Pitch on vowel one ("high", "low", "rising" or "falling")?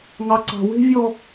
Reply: high